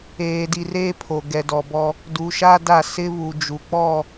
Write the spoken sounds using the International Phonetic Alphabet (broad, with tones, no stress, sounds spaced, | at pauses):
eː˨ d i˨ r eː˦ pʰ o˨ ɡ ɛ˨ d ɔ˨ b ɔ˦ | d u˨ ʃ a˦ d a˦˨ s ɪ˦ β u˨ d͡ʒ u˨ k͡p ɔ˦˨